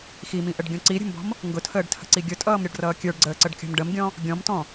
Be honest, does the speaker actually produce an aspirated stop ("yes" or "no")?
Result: yes